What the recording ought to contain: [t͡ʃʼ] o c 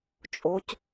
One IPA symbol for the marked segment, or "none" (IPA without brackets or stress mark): t͡ʃʼ